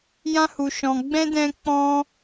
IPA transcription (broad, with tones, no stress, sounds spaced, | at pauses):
j ã˦ h u˧ ʃ ɔ̃˧ ɡ͡b ɛ̃˦ d ɛ̃˦ k͡p ɔ̃˦